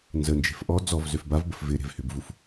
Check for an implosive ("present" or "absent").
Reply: absent